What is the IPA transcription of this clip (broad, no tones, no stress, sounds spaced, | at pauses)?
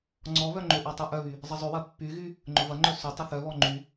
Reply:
ŋ͡ǀ ɔ β œ ŋ͡ǃ ʏ ʔ ɔ tˤ y ʔ œ β y | zˤ ə zˤ ʏ w ɐ pː y ɣ y | ŋ͡ǃ ʊ v ɐ ŋ͡ǃ œ s ʏ tˤ ʏ θ œ β ɔ ŋ͡ǃ y